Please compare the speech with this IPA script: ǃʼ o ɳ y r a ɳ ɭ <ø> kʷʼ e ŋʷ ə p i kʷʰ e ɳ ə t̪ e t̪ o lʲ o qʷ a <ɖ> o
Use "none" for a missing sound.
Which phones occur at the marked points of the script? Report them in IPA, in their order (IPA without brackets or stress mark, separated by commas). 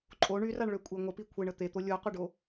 ø, ɖ